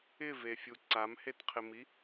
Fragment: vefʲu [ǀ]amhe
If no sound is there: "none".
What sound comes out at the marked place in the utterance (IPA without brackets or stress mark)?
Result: ǀ